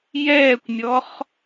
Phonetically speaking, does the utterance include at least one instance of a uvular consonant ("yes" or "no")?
yes